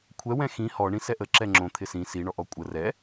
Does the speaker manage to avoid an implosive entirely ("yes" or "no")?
yes